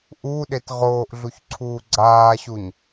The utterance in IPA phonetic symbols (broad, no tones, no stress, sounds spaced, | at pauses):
ʔ u ɗ e t ʁ oː ʔ ɮ u ç ǀʰ uː ɡ͡ǀ aː ɕ u ɲ